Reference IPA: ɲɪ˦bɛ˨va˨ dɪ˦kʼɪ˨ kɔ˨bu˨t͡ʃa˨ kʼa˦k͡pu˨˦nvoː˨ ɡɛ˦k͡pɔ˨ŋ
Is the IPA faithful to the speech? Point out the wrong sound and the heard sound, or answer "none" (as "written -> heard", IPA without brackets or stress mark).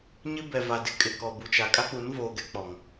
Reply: none